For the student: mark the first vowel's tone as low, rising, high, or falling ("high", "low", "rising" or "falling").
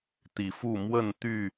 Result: rising